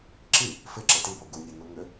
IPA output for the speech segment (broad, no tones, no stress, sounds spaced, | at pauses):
ǁ i | f ɪ ǁ e t i b o ɡ u nʲ u n u ŋ ʏ